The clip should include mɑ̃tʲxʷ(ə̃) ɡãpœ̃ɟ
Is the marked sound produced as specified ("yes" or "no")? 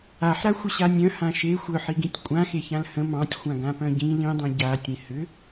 no